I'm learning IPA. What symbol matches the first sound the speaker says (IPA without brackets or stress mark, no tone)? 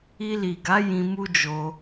i